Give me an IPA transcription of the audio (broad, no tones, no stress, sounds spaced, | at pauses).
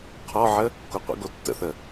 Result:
qʰ ɔ ʕ ə | k o qʷ ə̰ ɡ o tː ə̰ θ ə